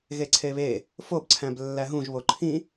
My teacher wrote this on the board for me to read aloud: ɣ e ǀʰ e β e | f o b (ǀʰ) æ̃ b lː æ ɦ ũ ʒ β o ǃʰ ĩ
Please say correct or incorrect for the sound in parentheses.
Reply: correct